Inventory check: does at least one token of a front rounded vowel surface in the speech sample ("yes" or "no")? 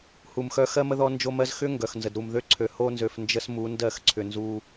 yes